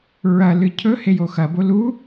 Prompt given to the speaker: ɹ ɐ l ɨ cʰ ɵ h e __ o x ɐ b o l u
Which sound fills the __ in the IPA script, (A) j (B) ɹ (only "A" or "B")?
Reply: A